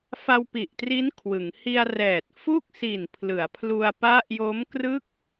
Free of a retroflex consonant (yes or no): yes